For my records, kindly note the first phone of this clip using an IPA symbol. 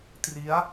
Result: t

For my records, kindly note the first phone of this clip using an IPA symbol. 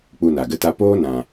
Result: k͡p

